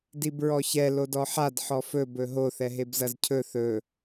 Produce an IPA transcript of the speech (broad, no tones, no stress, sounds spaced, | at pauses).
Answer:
d i b ɹ ɔ ç ɛ l o d ɔ ħ a d ħ ɔ f ɵ b ɵ ɦ o θ ɛ ɦ e b z ɐ z cʰ ɵ θ ɵ